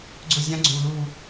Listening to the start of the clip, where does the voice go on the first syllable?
falling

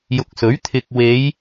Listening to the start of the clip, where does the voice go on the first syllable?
low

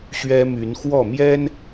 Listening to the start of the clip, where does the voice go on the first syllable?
high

